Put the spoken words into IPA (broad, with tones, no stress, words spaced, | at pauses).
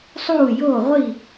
sˤuː˥˩joː˥˩ʁʷi˥˩